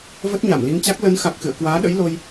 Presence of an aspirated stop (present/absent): absent